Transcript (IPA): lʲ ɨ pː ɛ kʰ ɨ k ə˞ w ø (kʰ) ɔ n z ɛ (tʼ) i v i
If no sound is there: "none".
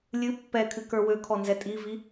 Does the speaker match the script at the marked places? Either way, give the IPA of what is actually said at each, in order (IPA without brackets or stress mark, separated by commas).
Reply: kʰ, tʼ